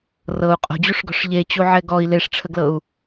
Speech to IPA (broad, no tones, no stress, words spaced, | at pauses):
rɤu̯ qʼo̤d͡ʑuʂɡɔ̤ʂ ʎet͡ɕuʕɛ ɡɔi̯ leʂʈ͡ʂʰəɡlɤu̯